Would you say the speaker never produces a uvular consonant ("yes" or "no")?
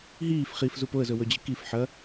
no